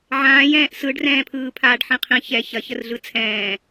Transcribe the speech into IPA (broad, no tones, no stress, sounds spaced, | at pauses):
ʕ ãː j ɛ̃ː ʔ s ɯ ɖ r ɛ̃ː pʰ ɯː pʰ aː ɖ ħ ĩ qʰ ĩ ç ɛ ç ɐ ç ə r ɮ ɯ t͡sʰ ɛ̃ː